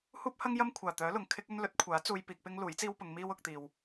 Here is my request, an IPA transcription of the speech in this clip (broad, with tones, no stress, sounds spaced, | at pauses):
h uː˥ p̚ h ɐ˥ ŋ j ɐ˥ m kʷʰ aː˨˩ t̪ œː˨˥ l ʊ˨˩ ŋ kʰ ɪ˥ k̚ ɵ˥ n l ɵ˨˥ t̚ kʷʰ aː˨˥ t͡s uː˧ j p iː˧ k̚ p ɪ˥ ŋ l uː˨˥ j t͡s iː˥ w p ʊ˨˧ ŋ m iː˥ w ʊ˨˥ k̚ t̪ iː˧ w